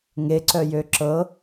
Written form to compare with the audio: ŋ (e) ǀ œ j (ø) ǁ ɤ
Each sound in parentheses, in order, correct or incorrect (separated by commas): correct, correct